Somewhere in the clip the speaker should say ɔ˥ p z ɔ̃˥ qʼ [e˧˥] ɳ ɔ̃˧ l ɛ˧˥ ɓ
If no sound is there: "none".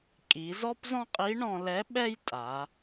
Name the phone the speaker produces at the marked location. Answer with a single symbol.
i˧˥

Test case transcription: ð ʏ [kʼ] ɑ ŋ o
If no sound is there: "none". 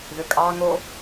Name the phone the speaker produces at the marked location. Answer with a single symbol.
kʼ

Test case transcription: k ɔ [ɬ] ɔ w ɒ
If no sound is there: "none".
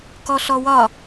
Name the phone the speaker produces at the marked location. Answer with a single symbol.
ɬ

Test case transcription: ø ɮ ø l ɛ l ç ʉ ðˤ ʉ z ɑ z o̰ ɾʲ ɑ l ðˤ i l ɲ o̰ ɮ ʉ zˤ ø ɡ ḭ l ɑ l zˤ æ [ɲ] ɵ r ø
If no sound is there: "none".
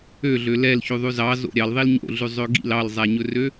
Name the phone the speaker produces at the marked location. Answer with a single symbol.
ɲ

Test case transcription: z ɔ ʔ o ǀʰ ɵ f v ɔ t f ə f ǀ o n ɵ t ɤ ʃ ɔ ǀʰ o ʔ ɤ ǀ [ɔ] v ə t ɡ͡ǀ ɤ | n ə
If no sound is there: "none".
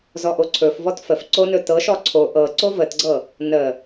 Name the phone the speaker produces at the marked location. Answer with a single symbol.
o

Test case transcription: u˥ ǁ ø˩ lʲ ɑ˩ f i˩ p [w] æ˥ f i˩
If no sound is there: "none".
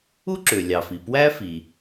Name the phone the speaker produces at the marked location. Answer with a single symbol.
w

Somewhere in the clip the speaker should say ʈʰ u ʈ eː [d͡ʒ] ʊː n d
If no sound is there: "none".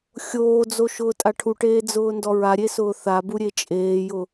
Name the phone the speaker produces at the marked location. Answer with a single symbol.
d͡z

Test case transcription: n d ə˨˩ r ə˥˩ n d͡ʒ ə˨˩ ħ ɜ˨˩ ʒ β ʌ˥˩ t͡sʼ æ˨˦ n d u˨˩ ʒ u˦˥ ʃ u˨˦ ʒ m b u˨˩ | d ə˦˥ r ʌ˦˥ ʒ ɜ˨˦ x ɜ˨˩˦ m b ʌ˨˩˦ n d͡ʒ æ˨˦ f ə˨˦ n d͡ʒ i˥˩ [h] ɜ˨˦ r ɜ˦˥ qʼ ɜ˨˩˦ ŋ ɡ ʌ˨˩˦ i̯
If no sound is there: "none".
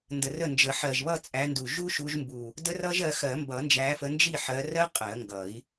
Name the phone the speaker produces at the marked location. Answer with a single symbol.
ħ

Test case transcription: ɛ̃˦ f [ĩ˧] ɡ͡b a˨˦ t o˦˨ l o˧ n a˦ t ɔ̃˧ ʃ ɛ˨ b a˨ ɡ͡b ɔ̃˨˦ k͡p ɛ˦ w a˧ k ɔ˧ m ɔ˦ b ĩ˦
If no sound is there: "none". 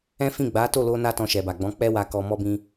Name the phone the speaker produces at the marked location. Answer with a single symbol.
ĩ˦˨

